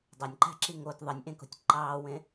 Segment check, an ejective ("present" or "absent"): absent